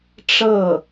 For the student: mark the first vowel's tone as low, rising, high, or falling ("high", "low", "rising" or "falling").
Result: falling